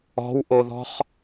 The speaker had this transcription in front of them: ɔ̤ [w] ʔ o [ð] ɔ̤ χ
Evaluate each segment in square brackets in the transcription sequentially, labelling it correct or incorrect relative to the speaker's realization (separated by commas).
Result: correct, correct